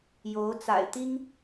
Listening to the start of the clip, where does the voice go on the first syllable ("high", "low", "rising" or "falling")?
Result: rising